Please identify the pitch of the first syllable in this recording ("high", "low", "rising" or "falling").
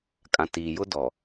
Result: low